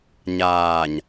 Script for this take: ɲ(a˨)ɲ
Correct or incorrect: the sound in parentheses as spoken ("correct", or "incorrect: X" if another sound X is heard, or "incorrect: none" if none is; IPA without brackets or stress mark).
incorrect: aː˨